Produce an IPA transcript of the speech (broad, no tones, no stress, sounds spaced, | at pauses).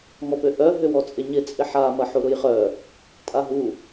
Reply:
ŋ ɔ p ø ʔ œ ɦ ʏ w ɔ t͡sʼ ɪ ɲ ɪ t͡sʼ ɪ ħ a m ɐ ħ u ɾ ʊ j χ œ | tʼ a ɦ u